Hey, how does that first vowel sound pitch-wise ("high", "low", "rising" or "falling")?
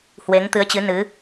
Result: rising